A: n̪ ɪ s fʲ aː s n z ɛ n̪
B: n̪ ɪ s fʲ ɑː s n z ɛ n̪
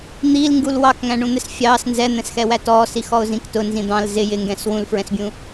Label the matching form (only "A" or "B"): B